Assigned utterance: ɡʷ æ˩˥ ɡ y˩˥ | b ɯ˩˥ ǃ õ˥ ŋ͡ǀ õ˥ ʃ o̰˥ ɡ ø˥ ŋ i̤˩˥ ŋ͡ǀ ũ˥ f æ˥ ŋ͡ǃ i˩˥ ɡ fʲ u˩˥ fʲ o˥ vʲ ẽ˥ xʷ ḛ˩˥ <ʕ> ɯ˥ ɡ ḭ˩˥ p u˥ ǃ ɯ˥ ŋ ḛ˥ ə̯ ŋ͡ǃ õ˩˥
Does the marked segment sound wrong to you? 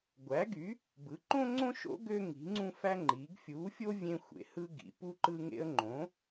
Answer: yes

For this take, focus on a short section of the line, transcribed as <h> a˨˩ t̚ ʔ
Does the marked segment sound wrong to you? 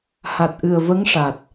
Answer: no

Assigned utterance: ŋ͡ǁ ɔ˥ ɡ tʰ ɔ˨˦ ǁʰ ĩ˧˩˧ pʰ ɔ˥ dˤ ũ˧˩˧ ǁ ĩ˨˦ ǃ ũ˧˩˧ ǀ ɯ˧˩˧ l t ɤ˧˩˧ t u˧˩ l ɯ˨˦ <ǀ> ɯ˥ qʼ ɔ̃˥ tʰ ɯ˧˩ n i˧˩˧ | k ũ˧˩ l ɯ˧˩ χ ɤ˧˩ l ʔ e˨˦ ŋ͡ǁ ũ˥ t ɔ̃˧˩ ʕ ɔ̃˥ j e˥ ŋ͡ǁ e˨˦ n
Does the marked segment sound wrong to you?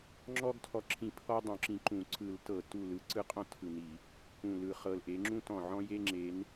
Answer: no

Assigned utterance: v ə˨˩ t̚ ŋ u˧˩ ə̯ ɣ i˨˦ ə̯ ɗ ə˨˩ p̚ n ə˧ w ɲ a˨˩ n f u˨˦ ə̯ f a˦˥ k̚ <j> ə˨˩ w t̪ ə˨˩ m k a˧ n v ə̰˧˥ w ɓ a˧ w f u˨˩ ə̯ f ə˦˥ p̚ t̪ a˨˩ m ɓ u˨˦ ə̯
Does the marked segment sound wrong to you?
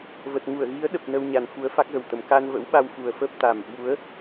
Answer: yes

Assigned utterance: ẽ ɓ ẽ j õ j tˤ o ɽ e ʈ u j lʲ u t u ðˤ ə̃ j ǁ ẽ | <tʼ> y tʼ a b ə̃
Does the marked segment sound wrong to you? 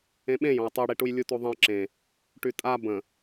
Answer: yes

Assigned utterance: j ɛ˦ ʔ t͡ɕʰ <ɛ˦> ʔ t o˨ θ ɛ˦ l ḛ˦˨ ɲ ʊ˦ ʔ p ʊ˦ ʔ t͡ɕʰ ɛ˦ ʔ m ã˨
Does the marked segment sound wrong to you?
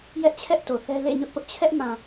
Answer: no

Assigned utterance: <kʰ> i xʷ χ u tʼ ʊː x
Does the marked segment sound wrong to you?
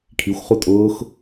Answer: no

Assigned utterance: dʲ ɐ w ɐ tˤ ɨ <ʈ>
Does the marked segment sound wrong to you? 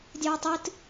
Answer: yes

